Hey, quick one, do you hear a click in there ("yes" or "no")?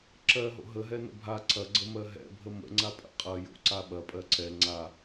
yes